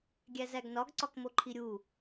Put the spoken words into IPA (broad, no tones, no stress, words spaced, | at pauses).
ɡʲæzæɡnɒɡ ǀɒkmoǃʰiɾʲu